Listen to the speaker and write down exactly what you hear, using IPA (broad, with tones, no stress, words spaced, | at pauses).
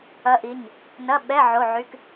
ɐ˧˥ʔi˩˧˩ɲ | nɐ˧˥˧ ɓɛ˧˥˧ ʕo˧˥˧ʕy˧˥˧k